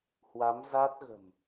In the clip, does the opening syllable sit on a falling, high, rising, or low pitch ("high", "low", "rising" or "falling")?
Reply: rising